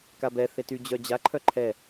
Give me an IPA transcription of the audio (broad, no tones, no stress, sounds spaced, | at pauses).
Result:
k a b ɛ θ e t y d͡ʑ œ d͡ʑ a ǃʰ œ ǃʰ ɛ